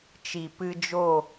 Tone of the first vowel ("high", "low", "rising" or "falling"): low